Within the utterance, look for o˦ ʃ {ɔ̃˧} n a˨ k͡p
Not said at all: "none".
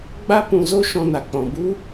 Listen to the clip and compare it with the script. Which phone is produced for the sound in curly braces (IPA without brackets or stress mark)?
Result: ɔ̃˧